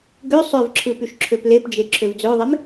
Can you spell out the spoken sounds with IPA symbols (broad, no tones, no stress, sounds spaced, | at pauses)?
ɡ ø sˤ ø v ǁʰ ɯ p y ʃ ǁʰ ø p l e p d͡ʒ e ǁʰ ø v d͡z ø ðˤ e m